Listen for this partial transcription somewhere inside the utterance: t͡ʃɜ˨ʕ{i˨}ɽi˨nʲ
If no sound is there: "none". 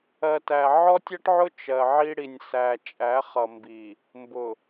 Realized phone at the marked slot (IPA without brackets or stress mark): i˦